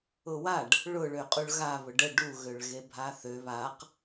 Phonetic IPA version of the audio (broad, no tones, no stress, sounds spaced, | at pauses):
ʊ w a ɖ | ɭ ʊ ɭ ø qʼ u ɭ ɣ a β ʊ ɖ ə ɖ u ɣ ø ɭ ɣ e bʱ a θ ø β a q